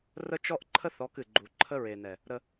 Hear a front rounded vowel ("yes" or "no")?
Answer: no